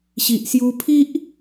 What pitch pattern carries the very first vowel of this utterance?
low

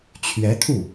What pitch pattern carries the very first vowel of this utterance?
rising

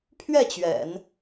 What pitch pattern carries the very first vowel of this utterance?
falling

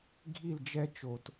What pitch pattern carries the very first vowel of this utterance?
falling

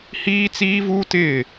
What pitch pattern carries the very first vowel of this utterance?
high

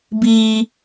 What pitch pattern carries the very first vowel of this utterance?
high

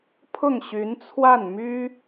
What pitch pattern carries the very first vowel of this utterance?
falling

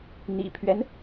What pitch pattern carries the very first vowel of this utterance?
low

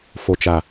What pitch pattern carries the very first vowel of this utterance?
low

